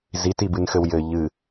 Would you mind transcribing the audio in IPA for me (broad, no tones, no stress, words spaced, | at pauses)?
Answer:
zitibɨnxɘw jɘ ʎɨ